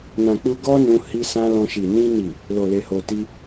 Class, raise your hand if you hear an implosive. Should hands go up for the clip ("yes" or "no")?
no